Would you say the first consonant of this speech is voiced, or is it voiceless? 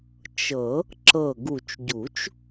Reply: voiceless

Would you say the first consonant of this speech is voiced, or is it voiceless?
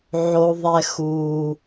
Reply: voiced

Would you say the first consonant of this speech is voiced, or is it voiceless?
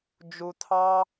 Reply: voiced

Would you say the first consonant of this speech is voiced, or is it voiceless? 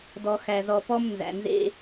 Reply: voiced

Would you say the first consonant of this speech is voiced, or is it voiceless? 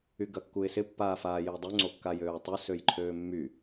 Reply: voiced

